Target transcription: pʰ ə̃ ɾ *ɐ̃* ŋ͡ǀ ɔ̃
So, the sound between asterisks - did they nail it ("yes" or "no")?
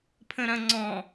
yes